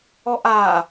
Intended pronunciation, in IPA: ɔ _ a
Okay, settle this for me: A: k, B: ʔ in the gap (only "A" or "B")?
B